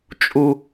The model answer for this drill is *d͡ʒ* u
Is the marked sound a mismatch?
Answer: yes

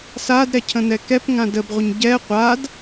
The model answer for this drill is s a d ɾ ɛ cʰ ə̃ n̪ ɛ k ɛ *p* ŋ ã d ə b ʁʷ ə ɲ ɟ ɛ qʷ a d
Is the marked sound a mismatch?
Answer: no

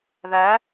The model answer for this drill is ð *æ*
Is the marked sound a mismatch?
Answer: no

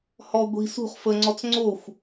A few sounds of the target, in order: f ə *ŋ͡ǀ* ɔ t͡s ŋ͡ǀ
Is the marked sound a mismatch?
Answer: no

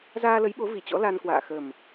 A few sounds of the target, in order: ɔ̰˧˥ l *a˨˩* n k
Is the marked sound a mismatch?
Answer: yes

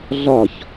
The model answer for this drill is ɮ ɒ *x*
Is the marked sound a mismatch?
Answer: yes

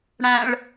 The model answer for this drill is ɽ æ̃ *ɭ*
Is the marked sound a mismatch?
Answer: no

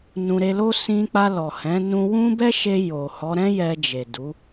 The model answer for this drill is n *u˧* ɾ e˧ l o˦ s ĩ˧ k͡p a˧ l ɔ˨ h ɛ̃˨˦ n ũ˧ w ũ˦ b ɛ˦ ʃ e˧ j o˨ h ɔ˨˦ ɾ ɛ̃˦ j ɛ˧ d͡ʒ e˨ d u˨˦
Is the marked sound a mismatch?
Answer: yes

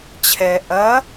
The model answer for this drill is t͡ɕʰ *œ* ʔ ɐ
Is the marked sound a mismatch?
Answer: yes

